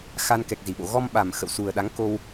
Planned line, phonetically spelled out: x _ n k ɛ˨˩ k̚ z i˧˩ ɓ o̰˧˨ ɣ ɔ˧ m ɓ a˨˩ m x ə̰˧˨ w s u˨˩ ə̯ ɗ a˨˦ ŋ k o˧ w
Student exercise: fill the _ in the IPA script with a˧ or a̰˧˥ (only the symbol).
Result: a˧